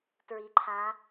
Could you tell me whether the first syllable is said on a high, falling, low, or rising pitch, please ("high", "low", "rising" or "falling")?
rising